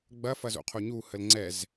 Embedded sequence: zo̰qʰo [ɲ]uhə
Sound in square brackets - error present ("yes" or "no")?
no